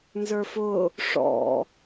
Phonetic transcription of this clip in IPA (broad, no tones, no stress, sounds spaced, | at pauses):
n z ə˞ f ʊ | ʂ ɔ̰